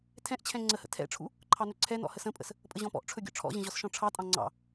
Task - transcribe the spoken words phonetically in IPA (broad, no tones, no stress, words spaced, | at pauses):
tʰɛ̃ʔt͡ɕʰɛ̃ ŋ͡ǀəhə̰ tʰɛ̰ʈ͡ʂʰṵ | ǃʰɑnɵǀʰɛnɔ̰ həsə̃pʼə̰s | pʼəʑɔ̃pɔ̰ʔʈ͡ʂʰɵ ɡʲɔ̰ʈ͡ʂʰɔ̰ʑə̃ ʑɔsʃɔ̃ʈ͡ʂʰɑtʼɑ̃ ŋ͡ǀɑ̰